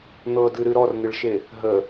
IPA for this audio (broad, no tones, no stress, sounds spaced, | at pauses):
n̪ ɤ d ɨ ɾ ɨ ɾ ɔ r n̪ ɪ ɭ ʃ e | ɦ ə